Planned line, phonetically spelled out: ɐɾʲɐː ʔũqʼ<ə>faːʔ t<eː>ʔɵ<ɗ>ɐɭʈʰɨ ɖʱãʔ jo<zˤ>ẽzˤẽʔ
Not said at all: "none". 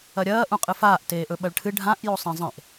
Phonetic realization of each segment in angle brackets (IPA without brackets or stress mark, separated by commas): ɨ, eː, ɓ, sˤ